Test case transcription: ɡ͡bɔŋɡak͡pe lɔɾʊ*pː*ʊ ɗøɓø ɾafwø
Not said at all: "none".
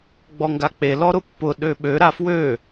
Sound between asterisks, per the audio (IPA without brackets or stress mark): pː